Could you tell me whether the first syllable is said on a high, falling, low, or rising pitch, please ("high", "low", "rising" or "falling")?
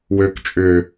low